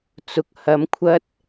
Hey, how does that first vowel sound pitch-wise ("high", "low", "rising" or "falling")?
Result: low